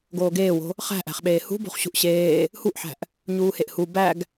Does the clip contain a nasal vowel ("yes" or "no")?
no